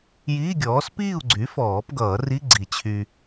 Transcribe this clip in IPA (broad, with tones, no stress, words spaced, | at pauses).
jiː˧˥˧ɡʲɔː˩˥s piː˥˨u̯ɡ͡ǀy˩˥ fɔː˨˩˦pɡʌː˨˩˦ ri˧˥˧ɡ͡ǀi˨˩˦ t͡ɕʰy˨